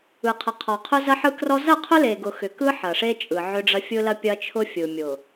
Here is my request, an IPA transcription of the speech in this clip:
ɯ˨ qʰ ɐ˨ qʰ ɔ˨ qʰ ʊ˦ z ɐ˦ ħ ɯ˦ k r ɔ˦ z ɐ˦˨ qʰ ʊ˦ l e˨ ɡ ʊ˨ x ʏ˨ k ɯ˦ ħ ɐ˨ ʂ e˦ t͡ʃʼ ɯ˨ ʕ ʏ˦ ɖ͡ʐ ɐ˦ fʲ ɯ˦ l ɐ˦ pʲ ɐ˦ t͡ʃʰ ʊ˦ fʲ ɯ˨ mʲ ʊ˨

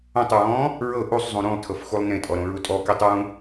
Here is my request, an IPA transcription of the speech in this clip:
õ tˤ ɹ ɔ̃ː | ɹ ɤ ʔ u sˤ zˤ ũ ɾ ũ lˠ tʰ ɤ f x u lˠ n ẽ tʼ ɔ ɾ õ ɹ u tʼ ɔ k i tˤ ɹ ũ

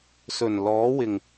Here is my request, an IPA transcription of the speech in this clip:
s ɵ˨˩ n l ɔː˨˥ w ɪ˨˩ ŋ

